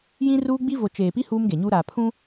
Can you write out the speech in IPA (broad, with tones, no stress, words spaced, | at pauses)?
jĩ˦ruː˦ɡ͡bi˦ vo˨t͡ʃeː˨pi˦ huː˦mɡe˨ɲuː˦ɾaː˨ pʰũ˦